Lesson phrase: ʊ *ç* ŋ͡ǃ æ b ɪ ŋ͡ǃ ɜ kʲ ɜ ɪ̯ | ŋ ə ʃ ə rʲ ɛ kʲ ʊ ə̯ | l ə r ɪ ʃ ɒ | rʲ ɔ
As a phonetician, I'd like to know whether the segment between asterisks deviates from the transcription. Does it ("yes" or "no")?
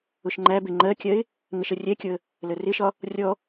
yes